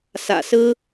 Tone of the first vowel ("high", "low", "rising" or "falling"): low